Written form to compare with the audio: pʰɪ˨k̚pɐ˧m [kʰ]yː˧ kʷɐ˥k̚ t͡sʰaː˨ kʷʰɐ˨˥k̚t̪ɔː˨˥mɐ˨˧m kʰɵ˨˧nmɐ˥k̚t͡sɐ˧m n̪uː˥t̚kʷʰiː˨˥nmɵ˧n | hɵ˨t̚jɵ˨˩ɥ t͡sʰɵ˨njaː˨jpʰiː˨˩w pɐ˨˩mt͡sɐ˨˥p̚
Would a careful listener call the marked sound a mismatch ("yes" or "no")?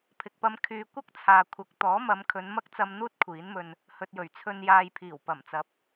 no